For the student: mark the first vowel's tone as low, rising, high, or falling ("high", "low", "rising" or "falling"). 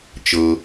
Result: low